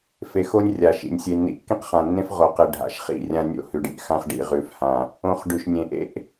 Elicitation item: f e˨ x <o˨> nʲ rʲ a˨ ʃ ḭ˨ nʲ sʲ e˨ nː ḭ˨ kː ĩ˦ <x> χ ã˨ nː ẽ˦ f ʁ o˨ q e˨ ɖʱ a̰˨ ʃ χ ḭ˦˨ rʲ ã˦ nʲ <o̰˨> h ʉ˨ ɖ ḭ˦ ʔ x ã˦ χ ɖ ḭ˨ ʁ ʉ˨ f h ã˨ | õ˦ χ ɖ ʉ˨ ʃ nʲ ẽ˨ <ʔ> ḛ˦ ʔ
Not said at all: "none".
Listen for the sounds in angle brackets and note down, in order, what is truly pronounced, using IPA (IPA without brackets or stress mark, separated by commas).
o˦, q, o̰˦˨, ʔ